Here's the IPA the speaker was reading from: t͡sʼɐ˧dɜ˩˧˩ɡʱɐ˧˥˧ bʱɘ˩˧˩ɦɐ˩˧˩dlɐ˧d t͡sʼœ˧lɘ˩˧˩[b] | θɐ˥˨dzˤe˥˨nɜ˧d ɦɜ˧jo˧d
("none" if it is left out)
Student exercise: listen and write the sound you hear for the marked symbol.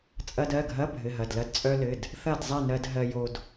d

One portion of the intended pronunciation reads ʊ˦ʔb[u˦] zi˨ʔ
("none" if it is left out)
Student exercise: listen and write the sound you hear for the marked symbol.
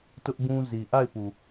ũ˦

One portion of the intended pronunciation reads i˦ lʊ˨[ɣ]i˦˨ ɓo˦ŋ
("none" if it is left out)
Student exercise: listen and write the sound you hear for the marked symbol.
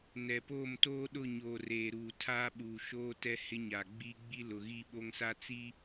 ɣ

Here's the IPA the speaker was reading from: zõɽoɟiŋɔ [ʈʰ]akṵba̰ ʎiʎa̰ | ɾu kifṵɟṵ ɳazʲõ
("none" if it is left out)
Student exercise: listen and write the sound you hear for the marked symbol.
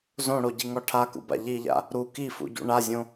ʈʰ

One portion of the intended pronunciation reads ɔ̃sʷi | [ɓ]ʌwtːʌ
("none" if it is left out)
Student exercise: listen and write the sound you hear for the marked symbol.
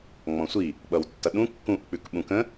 ɓ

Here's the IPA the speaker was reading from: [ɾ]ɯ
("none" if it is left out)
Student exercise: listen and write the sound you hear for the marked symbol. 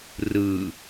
r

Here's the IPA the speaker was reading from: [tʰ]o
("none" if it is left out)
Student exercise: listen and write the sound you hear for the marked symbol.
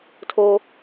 tʰ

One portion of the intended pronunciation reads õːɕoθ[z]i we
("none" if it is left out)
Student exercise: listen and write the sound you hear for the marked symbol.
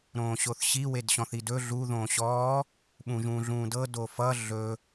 ɕ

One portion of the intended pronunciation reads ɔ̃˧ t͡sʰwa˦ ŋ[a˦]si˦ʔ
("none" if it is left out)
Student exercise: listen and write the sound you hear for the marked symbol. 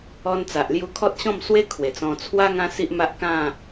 ã˦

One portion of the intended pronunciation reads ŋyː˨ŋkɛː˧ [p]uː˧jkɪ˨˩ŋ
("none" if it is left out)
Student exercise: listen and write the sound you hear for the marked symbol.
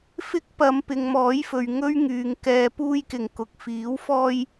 p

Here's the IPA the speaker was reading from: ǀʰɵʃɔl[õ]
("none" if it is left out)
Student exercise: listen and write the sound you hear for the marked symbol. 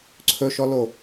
o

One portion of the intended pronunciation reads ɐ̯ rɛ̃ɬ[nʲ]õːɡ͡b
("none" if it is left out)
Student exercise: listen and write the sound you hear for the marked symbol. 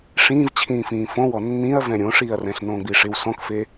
n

